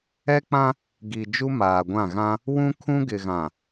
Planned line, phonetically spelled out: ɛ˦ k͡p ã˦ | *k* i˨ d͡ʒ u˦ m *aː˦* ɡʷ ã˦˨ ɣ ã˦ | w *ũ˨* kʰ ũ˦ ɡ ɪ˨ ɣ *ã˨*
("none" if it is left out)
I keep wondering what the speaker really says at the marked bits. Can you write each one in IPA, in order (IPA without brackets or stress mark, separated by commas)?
ɡ, aː˨, ũ˦, ã˨